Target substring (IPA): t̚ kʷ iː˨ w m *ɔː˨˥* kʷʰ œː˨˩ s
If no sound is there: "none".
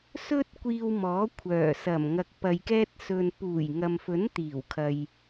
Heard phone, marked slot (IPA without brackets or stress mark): ɔː˨˥